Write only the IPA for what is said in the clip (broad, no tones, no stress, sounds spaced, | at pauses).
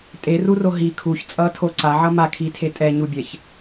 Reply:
tʼ e r u r o ɦ i kʰ u ç t͡sʼ ʌ tʰ o ǀ a ʕ ʌ m a kʰ i tʰ e tʼ ɛ ɲ u bʲ ɛ ç